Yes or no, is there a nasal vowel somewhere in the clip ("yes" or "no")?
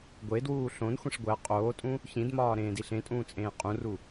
yes